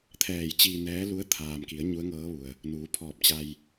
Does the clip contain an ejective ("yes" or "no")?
no